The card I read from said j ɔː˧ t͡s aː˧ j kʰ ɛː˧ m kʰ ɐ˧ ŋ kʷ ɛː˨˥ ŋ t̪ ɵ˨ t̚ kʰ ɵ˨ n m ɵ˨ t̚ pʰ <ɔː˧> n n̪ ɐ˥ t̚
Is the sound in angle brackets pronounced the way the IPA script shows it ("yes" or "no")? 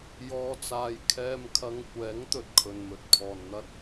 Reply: no